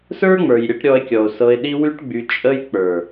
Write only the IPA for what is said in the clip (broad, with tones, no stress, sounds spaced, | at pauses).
s ə˞˦ ŋ͡m ə˞˨ j ɾʲ ə˧ ʈ ɾʲ ɔ˧ e̯ kʲ ɔ˨ o̯ s ɤ˧ e̯ ɗ i˦ w y˦ ʈ ɡ͡b y˧ t͡ʃʼ ə˦ j k͡p ə˞˨